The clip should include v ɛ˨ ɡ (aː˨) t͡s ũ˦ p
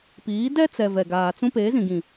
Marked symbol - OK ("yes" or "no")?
yes